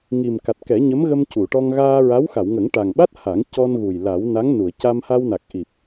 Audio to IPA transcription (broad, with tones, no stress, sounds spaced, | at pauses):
ŋ i˨˩ m k a˨˩ t̚ k ɛ˨˩˦ ɲ ə˧˥ m ɣ ə˧ m c u˨˩˨ ʈ ɔ˧ ŋ ɣ aː˧ ɹ a˧˥ w x a˨˩˨ w ŋ ə˨˩˦ ŋ ʈ a˨˩ ŋ ɓ a˦˥ t̚ h a˨˩˦ ŋ c ɔ˧ n ɣ u˨˩ j l a˨˩˦ w n a˧˥ ŋ n u˨˩˨ ə̯ c a˧ m h a˧ w n a˨˩ k̚ ʔ i˨˩ p̚